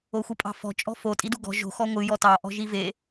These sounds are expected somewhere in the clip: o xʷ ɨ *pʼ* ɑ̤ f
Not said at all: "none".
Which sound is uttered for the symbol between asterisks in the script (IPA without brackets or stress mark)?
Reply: pʼ